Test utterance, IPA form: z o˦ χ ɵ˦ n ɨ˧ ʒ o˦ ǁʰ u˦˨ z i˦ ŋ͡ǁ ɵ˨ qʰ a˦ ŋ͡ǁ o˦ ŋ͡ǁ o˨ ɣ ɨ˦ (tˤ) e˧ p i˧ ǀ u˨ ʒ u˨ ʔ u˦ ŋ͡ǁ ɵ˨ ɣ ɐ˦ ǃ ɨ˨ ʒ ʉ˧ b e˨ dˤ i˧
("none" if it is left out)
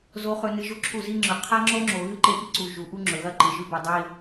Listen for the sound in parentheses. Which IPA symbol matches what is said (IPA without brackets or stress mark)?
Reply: ǃ